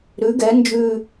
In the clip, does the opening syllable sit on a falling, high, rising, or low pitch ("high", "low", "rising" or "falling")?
rising